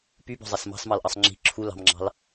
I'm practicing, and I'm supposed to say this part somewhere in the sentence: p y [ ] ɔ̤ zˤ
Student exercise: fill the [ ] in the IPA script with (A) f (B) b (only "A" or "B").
B